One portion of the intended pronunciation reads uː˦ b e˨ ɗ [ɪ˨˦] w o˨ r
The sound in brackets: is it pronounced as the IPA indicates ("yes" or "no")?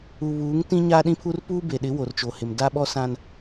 yes